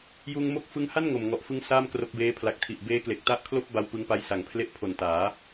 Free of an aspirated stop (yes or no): no